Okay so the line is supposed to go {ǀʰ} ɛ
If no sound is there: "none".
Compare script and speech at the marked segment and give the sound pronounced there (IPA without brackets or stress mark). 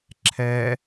ǁʰ